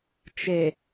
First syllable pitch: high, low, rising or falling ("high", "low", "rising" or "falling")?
low